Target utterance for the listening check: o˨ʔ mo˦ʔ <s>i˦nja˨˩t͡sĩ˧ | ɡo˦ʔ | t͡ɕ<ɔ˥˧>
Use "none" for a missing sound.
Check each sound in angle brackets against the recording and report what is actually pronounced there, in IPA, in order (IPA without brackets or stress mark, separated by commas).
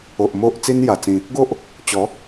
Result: t͡s, ɔ˨˦